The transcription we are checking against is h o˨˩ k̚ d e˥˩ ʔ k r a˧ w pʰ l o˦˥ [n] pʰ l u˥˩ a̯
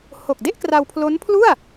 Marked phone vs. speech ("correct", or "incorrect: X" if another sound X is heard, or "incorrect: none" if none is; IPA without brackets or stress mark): correct